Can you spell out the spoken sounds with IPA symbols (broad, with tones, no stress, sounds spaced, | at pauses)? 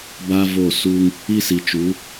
b a˦ v o˦˨ s uː˦ ŋ | i˦ s i˨ t͡ʃ uː˨˦